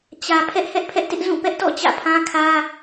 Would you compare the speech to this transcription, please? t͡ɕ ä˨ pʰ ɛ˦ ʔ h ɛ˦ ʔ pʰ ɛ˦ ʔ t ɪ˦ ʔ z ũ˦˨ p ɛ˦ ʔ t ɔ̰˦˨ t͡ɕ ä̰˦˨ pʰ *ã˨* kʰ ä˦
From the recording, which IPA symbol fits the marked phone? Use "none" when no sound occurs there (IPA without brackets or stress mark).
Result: ã˦